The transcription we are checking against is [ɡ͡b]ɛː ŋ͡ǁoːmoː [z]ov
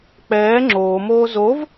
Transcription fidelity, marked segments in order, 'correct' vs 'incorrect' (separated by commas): incorrect, correct